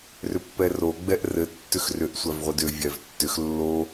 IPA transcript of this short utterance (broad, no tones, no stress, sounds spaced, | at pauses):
r ʏ pː ɛ r o ɡ͡b ɛ ʔ r ɘ tː ʏ x r ʏ ʔ sʷ æ v ʁʷ ɘ d ʏ vʲ æ v tː ʏ x lː o